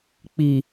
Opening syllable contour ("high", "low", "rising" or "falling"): low